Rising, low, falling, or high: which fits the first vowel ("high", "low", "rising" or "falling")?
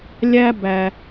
high